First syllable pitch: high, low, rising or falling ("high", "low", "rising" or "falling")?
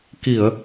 low